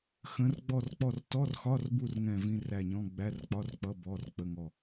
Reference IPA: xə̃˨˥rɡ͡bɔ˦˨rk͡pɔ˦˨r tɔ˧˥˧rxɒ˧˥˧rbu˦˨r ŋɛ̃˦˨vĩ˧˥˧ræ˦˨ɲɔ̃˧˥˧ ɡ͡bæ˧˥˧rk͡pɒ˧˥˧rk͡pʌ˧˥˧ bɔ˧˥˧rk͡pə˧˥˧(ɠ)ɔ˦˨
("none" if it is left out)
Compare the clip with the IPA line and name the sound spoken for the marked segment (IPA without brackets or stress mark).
ŋ